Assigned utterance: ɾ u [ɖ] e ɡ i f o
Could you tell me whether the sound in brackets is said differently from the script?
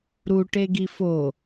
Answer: yes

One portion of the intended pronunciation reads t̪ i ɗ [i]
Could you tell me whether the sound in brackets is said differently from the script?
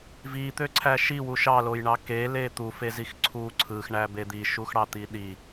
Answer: no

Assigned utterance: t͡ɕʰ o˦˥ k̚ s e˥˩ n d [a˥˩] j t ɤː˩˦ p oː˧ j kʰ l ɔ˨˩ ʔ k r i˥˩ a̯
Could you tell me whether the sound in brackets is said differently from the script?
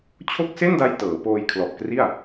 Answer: yes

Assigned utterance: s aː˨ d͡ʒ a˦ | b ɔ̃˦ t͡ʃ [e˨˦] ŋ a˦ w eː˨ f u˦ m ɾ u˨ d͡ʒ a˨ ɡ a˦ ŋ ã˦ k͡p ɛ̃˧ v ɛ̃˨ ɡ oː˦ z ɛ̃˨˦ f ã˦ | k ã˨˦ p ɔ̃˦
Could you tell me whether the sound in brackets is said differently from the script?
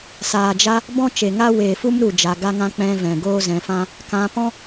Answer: yes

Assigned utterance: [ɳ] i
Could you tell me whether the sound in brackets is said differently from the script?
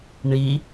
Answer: no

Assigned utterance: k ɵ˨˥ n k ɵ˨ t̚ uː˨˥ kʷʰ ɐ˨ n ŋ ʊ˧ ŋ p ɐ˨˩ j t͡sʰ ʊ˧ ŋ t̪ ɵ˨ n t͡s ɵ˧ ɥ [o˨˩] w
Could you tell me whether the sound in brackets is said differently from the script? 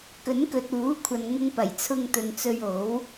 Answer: yes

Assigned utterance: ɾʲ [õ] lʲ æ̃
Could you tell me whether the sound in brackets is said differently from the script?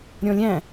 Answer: yes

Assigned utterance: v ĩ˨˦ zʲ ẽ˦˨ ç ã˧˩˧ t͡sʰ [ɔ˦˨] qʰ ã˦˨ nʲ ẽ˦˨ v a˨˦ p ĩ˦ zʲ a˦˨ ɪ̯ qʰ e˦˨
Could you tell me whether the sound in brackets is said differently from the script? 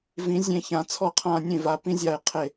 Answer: no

